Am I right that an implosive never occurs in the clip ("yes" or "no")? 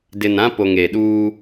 no